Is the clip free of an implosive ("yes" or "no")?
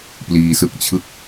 yes